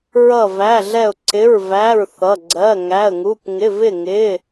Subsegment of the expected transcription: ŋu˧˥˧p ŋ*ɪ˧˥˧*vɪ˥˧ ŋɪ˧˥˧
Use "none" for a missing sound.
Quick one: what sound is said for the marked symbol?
ɪ˧˥˧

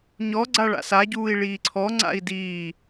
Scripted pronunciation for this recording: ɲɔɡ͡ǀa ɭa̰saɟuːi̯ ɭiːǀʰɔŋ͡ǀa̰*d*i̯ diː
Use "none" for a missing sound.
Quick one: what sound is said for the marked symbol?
none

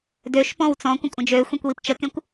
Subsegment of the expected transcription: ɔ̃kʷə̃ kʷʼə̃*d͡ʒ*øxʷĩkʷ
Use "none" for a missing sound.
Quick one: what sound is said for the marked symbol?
d͡ʒ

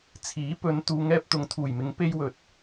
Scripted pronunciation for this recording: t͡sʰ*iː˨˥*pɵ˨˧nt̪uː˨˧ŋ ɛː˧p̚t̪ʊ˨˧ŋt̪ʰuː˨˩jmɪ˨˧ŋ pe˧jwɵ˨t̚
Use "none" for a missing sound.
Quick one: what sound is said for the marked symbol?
iː˨˥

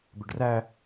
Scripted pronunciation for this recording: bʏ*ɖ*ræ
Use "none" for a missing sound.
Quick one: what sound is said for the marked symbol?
ɖ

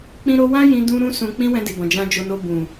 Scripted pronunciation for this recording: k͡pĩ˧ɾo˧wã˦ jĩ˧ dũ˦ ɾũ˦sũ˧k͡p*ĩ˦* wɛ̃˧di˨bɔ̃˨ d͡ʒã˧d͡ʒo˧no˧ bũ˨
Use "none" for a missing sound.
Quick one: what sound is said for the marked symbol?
ĩ˦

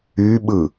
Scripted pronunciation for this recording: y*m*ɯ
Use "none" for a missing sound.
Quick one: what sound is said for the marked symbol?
ɓ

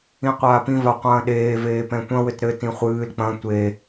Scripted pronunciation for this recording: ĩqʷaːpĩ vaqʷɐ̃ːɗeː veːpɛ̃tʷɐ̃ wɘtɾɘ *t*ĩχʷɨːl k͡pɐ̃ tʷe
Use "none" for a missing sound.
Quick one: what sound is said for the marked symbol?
t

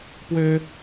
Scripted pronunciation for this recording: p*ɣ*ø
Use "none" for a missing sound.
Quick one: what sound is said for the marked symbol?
w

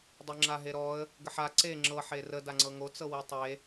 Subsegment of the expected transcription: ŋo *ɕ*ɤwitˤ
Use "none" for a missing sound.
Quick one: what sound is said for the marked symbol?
t͡s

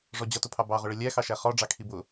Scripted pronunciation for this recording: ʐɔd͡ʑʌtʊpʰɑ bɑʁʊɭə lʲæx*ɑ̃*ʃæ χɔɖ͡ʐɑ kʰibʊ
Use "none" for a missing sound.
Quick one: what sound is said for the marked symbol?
ɑ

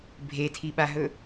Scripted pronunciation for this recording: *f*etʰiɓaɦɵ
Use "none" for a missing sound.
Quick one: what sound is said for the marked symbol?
bʱ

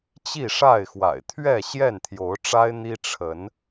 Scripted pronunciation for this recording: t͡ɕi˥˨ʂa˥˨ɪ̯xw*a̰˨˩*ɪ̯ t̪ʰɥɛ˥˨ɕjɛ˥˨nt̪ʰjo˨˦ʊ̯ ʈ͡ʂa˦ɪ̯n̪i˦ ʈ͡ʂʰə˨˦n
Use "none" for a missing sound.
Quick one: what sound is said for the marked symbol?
a̰˨˩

